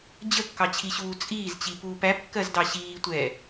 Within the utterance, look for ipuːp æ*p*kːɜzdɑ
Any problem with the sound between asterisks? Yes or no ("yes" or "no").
no